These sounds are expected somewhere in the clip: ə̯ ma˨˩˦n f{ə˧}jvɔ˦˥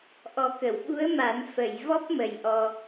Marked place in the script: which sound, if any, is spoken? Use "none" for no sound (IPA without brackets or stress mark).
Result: ə˨˩˨